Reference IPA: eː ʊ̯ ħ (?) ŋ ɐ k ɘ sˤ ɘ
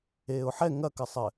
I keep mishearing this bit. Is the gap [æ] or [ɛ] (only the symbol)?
ɛ